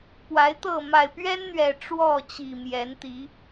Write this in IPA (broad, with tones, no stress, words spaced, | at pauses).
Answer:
pwa˨˦ɪ̯t̪ɤ˥˨ ma˨˩ɪ̯pɥɛ˦nn̪ɥɛ˨˩ ʈ͡ʂwɔ˥˨t͡ɕi˨˩ mjɛ˨˦nt̪i˨˦